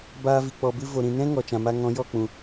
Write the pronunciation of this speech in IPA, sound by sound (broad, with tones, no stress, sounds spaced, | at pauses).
b aː˧ v i˨ k͡p ɔ˨ b ɨ˧ v o˨ ɾ ĩ˨ n ɛ̃˦ ŋ ɔ˨ t͡ʃ ã˨ m a˧ ŋ ɔ̃˨˦ j ɔ˦˨ k͡p ũ˨